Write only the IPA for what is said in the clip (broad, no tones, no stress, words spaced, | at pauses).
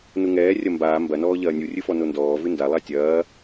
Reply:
nuŋɛː rʲɐmbaː mbɐnɔː ʎɐːnʲurʲɨfɔ nondɔːvɨ nda lˠatʲɐː